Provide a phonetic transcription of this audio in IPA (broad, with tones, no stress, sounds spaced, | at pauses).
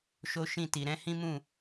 ʃ o˦ ʃ ĩ˦˨ t i˨ ɾ ɛ̃˧ h ĩ˦ m ũ˦˨